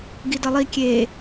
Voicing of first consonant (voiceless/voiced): voiced